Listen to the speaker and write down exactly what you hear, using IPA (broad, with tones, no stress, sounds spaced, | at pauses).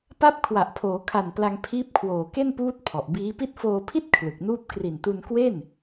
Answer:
p a˦˥ p̚ kʰ w a˨˩ ʔ pʰ oː˩˦ kʰ a˨˩ n p l a˧ ŋ pʰ iː˦˥ p̚ kʰ w oː˨˩ k e˥˩ n p uː˦˥ t̚ pʰ ɔ˨˩ ʔ b iː˦˥ p i˥˩ t̚ f oː˧ pʰ i˥˩ t̚ kʰ l ɯ˨˩ k̚ n uː˥˩ p̚ k r i˨˩ n t u˧ n k w e˥˩ n